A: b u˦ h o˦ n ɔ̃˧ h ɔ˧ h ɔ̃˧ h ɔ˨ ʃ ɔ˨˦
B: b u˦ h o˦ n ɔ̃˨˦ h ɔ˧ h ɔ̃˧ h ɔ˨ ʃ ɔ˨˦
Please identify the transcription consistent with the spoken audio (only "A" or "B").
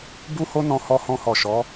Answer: A